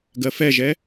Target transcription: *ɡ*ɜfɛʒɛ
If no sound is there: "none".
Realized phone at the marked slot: ɡ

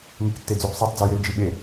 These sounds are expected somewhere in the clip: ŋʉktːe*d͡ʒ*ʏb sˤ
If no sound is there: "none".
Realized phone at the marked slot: d͡z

